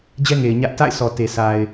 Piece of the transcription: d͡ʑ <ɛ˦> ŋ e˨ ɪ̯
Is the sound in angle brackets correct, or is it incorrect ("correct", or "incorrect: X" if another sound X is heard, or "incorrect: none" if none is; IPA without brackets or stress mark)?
correct